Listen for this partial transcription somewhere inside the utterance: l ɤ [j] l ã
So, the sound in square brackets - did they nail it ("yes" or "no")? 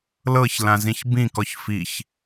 no